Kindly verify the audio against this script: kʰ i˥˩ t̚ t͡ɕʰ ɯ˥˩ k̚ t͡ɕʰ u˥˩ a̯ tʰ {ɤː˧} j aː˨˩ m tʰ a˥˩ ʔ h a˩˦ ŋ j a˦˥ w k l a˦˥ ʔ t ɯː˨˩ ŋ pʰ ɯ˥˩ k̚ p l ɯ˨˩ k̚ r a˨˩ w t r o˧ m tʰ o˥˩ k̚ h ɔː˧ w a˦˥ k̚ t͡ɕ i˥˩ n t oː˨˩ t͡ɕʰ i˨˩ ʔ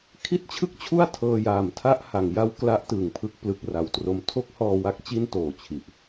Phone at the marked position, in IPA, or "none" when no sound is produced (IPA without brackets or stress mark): ɤː˧